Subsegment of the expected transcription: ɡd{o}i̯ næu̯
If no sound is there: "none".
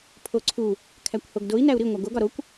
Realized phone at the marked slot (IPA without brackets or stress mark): o